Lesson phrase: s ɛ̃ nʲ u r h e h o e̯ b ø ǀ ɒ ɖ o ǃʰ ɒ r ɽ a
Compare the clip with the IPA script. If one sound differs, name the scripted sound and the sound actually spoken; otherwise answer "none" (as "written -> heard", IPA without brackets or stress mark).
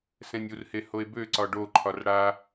none